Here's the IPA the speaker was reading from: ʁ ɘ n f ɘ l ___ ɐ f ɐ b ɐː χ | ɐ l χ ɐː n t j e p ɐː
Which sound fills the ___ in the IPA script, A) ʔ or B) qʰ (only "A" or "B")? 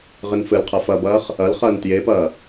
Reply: B